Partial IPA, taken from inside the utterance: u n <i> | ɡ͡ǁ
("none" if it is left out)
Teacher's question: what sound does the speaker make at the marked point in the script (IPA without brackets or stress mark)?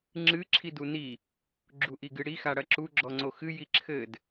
i